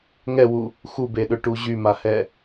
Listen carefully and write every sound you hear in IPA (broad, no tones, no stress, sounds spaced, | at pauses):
ŋ ɛ w u | x u b e ɗ ø ʈ u ʑ y m a h ɛ